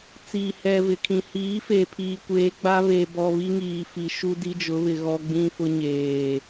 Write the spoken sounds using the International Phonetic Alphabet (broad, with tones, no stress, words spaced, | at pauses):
t͡siː˨hɛ˨vɪ˨kʰĩ˨ hiː˨˦fe˨ pʰiː˨kʷeː˨˦ɡ͡ba˦ βe˨bɔ˨ βi˦ŋiː˨fi˨ ʃu˦ di˦d͡ʒʊ˨˦βɪ˨ ɣɔ˦ɡ͡bĩ˦fʊ˦ ɲeː˨